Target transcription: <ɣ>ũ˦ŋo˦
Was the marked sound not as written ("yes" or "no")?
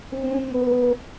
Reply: no